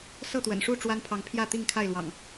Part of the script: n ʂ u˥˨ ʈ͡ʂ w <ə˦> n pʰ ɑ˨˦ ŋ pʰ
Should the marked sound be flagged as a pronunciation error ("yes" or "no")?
yes